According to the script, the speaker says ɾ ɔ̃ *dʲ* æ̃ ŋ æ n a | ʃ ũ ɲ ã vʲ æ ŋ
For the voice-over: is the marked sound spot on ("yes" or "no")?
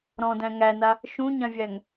no